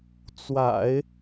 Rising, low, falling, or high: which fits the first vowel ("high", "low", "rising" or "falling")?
low